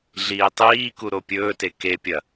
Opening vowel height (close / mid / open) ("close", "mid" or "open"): close